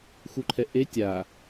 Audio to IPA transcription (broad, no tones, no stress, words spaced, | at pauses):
xuǃʰɛʔe tʲa